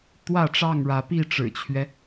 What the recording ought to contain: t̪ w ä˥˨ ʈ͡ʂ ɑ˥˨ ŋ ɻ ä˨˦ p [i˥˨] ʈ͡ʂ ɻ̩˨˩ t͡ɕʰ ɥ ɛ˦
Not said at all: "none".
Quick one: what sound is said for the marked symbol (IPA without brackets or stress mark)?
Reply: i˥˨